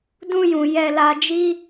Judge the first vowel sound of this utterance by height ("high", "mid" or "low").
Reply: high